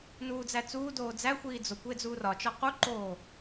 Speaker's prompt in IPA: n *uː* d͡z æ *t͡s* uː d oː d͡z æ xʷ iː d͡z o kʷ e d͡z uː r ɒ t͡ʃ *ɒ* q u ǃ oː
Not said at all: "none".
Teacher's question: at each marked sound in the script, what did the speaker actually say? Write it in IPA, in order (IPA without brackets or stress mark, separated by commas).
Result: uː, t͡s, ɒ